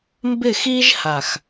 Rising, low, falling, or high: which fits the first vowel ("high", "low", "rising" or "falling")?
falling